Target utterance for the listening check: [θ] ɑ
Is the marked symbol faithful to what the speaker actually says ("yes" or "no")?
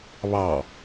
no